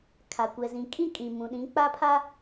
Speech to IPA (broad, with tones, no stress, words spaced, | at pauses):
kʰa˨kʷɛ˨zĩ˨ kʼĩ˦ kʼĩ˨mũ˨ɗĩ˨˦ k͡pa˦pʰa˦